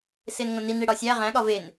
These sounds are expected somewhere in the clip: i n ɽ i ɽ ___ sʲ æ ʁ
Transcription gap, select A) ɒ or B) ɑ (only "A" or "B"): A